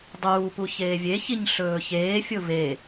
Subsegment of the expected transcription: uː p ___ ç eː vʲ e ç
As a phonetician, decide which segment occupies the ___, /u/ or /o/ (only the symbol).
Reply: u